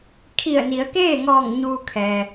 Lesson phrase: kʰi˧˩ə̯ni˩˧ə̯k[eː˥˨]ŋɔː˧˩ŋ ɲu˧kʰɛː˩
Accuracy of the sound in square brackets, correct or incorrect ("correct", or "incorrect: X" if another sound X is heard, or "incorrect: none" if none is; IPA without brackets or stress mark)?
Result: correct